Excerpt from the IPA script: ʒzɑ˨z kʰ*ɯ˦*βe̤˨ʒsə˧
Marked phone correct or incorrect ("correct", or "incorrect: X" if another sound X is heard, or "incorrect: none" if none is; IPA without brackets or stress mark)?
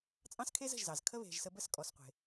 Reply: incorrect: ə˦